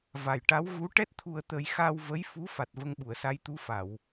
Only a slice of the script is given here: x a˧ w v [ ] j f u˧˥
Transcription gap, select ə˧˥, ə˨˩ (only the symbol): ə˧˥